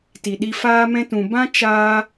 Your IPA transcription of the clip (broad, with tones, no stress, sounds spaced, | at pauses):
t i˨ ɗ i˧ f aː˦ m ɛ̃˦ t ũ˨ b ã˦ t͡ʃ aː˧